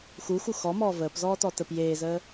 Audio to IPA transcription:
x u x u x ɔ m ɔː v əː p z ɔː t ɔ t ə p j eː z əː

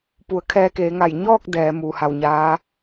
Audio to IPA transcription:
p u˩ ə̯ kʰ ɛː˧ k eː˩˧ ŋ a˧˩ j ɲ ɔː˥˨ k̚ d ɛː˩˧ m uː˩ h a˧˩ w ɲ aː˧˥

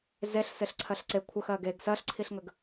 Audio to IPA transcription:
z e ɬ s ɪ ɬ ǀʰ ɜ ɬ ǀ e kʷʰ ə x ɜ ɡ e ɡ s ɜ ɬ ǀʰ i ɬ ŋ ə ɡ

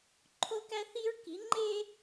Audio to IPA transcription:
ǃʰ o˦ k æ˦ θ i˦ ɹ k i˨˦ ŋ͡ǃ e˦

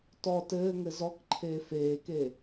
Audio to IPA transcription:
t ɔ t ɘː ŋ ɘ z ɔ k ǃʰ eː f eː k e

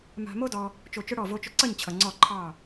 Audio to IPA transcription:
m a̤˧ m o˦ d ɔ˧ | t͡ʃ o˧ t͡ʃ ʊ˦ ɽ ɔ˦˨ v o˧ t͡ʃ ʊ˧ ǀ ʌ˦˨ ɲ t͡ɕʰ ʌ˨ ŋ͡ǀ ɔ˦˨ ǃʰ ɑ˦˨

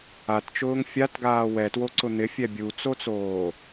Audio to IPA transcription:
a t t͡ʃ ʊː ŋ fʲ a t ɡ aː w ɛ t w o ǀ ʊ n̪ ɪ fʲ ɛ bʲ u t͡s o t͡s oː

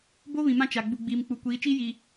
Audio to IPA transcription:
b o˦ β ĩ˨ m ã˦ t͡ʃ a˨ ɡ͡b u˨ ɡ͡b iː˨ m k͡p u˨ kʷ iː˨˦ t͡ʃ iː˦ j i˨

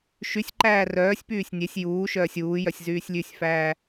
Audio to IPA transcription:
ʃ y sʲ ǃ æː r œː sʲ p yː sʲ nʲ e sʲ j uː ʃ œː sʲ uː j œ sʲ z yː sʲ lʲ ʉ sʲ f æː

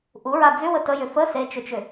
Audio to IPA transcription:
ʔ u ɹ a d͡z ʏ w ə t ə j ʏ f ə s e t͡ʃ ʏ t͡ʃ ʏ

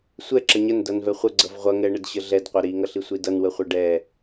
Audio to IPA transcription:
sʷ ɛ ǁ ə ɲ ə n d ʌ n v ɛ χʷ ə ɡ͡ǀ ʌ v ʁʷ ʌ ŋ ɛ ɳ ə d ɕ ə ɮ ɛ d qʷ ʌ ɾ i ŋ ʌ ɬ i sʷ i d ʌ n w ə χʷ ʌ ɖ ɛ

